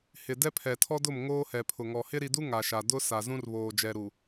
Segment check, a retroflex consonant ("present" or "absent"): absent